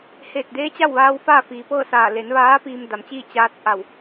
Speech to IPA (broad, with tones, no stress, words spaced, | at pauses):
heː˧˩t̚deː˧˥t͡ɕa˥˨wʋaː˧w faː˥˨fiː˩pɤː˥˨saː˧˩ le˩˧nʋaː˧˥ piː˧mda˩˧m t͡ɕiː˥˨ t͡ɕaː˧˥t̚ʔa˧˩w